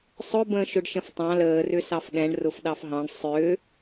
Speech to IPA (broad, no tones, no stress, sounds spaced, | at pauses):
sˤ ʊ b ə̃ː ʃ ʊ ɖ ʃ ə̃ f tˤ ɑ̃ l əː r ʏ s ɑ f ɗ ɛ̃ ɳ r ʊ f ɗ ɑ f ɦ ɑ̃ ɳ sˤ ʏː